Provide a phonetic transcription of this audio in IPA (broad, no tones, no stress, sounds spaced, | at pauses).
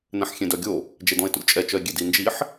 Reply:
n ɛ̃ ħ xʲ ẽ d œ ɡʲ o | d͡ʒ e d ɔ̃ e̯ t ṵ lʲ t͡ʃʼ ɛ t͡ʃ œ e̯ ɡʲ e d i n d͡ʒ i ħ